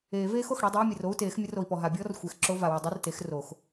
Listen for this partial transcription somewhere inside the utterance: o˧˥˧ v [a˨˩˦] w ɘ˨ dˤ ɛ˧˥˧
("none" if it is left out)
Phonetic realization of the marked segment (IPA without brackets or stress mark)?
a˨